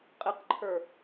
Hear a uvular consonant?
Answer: yes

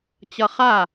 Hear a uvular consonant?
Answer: yes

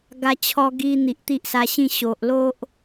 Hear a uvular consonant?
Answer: no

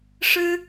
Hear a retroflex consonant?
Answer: yes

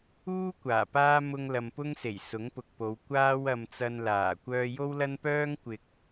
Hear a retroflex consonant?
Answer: no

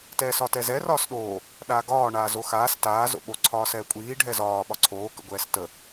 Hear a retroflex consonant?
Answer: yes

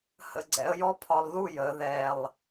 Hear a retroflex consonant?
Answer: no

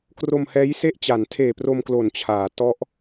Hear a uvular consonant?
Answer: no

